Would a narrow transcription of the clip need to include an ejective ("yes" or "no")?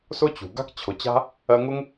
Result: no